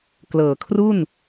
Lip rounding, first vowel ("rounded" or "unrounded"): unrounded